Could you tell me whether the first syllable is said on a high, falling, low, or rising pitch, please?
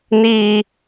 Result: high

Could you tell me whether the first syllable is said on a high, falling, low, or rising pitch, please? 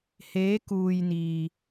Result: rising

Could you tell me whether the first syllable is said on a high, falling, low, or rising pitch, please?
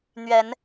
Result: rising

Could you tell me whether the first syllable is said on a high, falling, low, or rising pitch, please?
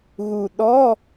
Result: low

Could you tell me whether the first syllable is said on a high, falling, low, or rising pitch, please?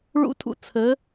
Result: high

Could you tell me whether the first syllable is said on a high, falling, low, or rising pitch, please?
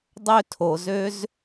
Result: high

